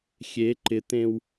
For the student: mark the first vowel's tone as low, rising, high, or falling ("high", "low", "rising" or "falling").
rising